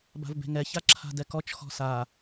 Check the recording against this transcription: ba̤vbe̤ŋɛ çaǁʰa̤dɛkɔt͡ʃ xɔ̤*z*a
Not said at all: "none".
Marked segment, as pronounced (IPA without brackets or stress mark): s